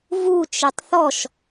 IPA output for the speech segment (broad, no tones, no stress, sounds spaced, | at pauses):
v u t͡ʃ e tˤ θ ɔ ʃ